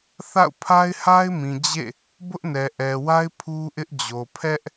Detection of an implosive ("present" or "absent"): absent